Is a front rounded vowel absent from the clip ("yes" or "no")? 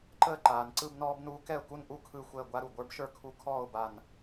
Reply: yes